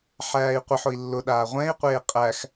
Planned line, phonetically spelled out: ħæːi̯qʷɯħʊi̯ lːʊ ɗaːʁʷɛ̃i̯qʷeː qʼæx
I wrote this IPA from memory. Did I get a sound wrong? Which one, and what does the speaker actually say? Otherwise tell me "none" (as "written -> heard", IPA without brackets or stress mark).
none